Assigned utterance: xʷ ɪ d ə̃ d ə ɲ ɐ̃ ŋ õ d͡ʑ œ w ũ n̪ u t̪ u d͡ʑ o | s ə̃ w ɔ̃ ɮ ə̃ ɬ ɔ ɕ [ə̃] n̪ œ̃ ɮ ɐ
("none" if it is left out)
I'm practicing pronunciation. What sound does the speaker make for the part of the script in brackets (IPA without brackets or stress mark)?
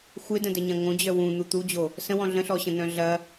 ə̃